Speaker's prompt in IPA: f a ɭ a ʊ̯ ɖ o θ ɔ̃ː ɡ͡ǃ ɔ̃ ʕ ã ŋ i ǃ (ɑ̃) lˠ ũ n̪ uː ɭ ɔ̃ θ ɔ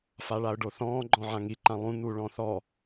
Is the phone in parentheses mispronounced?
yes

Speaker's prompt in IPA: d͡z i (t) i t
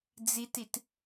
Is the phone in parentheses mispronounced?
no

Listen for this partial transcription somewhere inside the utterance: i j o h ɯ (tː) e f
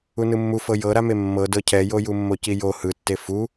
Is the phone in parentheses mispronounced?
no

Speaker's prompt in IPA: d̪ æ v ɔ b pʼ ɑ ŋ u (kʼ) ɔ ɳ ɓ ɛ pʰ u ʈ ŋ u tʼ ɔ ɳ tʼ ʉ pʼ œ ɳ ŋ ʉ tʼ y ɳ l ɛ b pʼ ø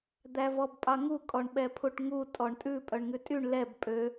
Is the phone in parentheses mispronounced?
no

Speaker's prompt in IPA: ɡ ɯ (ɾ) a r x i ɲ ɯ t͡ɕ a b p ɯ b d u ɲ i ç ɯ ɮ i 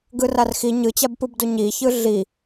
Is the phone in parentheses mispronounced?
yes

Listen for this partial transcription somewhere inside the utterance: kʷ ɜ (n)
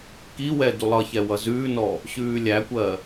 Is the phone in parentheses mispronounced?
yes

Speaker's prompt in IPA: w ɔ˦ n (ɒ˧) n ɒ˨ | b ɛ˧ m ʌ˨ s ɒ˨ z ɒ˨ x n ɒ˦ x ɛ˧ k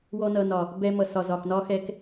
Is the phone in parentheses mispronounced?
yes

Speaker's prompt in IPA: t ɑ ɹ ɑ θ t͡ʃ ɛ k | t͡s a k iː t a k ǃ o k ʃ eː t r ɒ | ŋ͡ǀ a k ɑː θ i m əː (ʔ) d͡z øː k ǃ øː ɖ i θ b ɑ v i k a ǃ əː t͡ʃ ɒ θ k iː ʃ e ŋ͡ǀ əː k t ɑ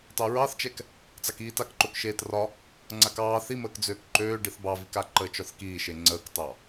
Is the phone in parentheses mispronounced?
yes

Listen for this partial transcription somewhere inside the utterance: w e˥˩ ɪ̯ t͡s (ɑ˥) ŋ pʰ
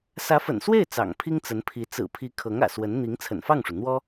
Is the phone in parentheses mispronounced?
yes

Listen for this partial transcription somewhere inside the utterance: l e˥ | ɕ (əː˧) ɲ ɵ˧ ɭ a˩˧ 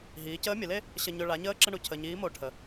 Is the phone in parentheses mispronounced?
yes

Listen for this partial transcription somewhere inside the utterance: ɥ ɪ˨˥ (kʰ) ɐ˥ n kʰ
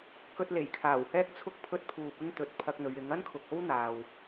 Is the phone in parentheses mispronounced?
yes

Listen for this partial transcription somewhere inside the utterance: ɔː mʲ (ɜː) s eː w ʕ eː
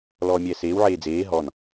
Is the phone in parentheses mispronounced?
yes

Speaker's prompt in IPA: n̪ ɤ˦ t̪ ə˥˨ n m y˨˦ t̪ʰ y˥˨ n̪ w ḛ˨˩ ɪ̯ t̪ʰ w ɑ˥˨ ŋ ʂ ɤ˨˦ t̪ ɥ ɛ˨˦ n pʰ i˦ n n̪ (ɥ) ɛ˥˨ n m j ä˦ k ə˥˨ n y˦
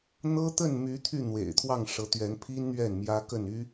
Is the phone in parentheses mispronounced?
no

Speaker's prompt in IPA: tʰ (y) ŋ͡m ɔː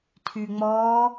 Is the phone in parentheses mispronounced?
no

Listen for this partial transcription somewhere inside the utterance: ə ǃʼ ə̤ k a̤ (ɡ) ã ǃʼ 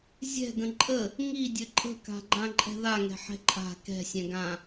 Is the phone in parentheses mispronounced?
yes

